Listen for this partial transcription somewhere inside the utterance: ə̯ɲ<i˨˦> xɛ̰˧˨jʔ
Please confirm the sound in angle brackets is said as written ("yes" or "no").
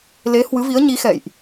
yes